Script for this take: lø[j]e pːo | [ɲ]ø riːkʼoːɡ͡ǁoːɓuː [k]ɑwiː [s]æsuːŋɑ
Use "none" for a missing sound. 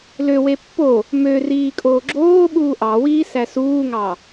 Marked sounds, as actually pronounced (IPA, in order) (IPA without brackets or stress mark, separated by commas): w, m, ʔ, s